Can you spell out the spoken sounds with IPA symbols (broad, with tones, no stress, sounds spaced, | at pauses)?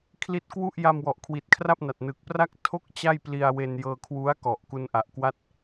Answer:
kʰ l i˦˥ t̚ k w u˥˩ ʔ j a˧ m w ɔ˨˩ ʔ kʰ w i˨˩ t̚ kʰ r a˥˩ p̚ n a˨˩ t̚ n ɯ˨˩ k̚ p r a˥˩ k̚ tʰ o˥˩ k̚ t͡ɕ a˥˩ j p l i˧ a̯ w e˧ n j ɤː˧ kʰ w u˦˥ a̯ k ɔ˨˩ ʔ k u˧ n ʔ a˨˩ ʔ k w a˥˩ t̚